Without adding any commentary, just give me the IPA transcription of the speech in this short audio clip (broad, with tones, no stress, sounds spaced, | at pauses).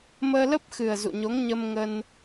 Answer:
m əː˧ l ə˦˥ p̚ x ɨ˨˩ ə̯ z ṵ˧˨ ɲ o˨˦ ŋ ɲ ə˧ m ŋ ə˧ n